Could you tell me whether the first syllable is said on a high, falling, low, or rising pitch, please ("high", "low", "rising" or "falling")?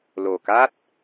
low